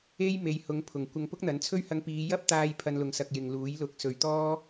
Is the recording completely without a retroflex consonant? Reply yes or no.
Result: yes